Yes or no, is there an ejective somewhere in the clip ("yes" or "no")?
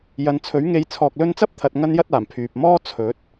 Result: no